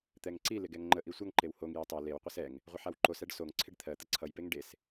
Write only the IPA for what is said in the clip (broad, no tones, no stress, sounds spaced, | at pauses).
t̪ ɛ ŋ ǀ i l ɪ ɡ ɛ ŋ ŋ͡ǃ ə ʔ i sʷ ʌ ŋ ǃ e w h o ŋ j ɛ tˤ ɛ l e w qʷ e s ɛ ŋ | ʁʷ ɪ ħ a w ǃ o s ɛ ɖ s o ŋ ǀʰ ɪ ɖ t̪ʰ ɜ t̪ ə ǀʰ ʌ j p e ŋ ɖ e s